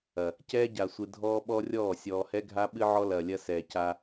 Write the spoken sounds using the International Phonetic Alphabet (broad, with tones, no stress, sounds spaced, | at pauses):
ɐ˨ | c ɛː˦ ɟ a˨ sʷ ɨ˨ dʱ ɔː˦ ɓ ɔ˦ rʲ ɔː˦˨ sʲ ɔː˨ h ɛ˦ ɡʱ a˦ ɓ ɨ˦ ʕ ɔ˦ l ɐː˨ lʲ ɐ˦ s ɛː˨ c a˦